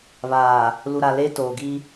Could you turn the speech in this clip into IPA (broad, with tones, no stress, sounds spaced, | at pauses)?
β aː˨ | l u˨ ɾ a˨ l eː˦ t oː˨ ɡ i˦